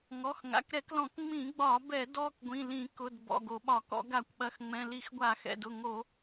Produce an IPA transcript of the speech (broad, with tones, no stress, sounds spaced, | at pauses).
ŋ ɔ˩˧˩ x ŋ a̰˩˧˩ k ɾ ɛ˧˩˧ k l ɔ̃˧˩˧ k ŋ͡m ĩ˧˩˧ ɡ͡b ɒ˧˩˧ b ɛ˧˩˧ d ɔ˩˧˩ k ɡʷ ĩ˩˧˩ l ĩ˧˩˧ k ʊ˩˧˩ d b ɔ̰˩˧˩ ɡ o˧˩˧ ɓ ɒ˧˩˧ k ɔ̰˧˩˧ ɡ a˧˩˧ kʷ ɓ ɐ˩˧˩ x ŋ͡m ɛ̃˩˧˩ l i˧˩˧ x ɡʷ a˧˩˧ x ɛ̰˩˧˩ d ʊ˩˧˩ ŋ o˧˩˧